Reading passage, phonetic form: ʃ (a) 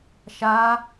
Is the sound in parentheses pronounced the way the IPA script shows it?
yes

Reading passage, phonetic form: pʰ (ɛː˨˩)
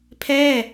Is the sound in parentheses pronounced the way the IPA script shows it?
no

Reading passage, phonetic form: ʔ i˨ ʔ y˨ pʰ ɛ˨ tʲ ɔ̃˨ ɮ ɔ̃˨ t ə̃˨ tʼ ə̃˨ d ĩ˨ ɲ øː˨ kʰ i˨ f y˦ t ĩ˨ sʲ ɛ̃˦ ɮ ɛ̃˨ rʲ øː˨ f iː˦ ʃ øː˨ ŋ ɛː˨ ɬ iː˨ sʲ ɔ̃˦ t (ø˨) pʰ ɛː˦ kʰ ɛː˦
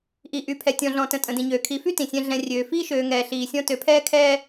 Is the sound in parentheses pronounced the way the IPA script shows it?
yes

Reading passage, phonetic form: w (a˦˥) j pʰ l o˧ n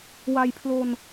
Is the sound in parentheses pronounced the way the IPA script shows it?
no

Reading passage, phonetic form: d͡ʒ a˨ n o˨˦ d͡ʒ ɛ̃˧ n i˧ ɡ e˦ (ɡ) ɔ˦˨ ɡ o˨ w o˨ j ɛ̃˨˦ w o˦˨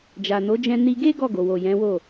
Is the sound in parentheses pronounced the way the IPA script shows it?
yes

